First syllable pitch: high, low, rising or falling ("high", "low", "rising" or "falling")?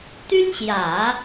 high